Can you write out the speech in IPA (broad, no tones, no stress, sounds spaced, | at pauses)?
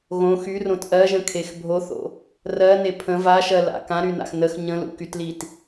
ɣ õ x y r õ t ʔ ɜ ʒ ə̃ kʰ e x bʱ o θ o̰ | r ɜ n e pʰ ə̃ v a ʃ ɜ l a̰ k ã ɾ y n a̰ x n ə x ɲ ə̃ l ṵ k y t l i t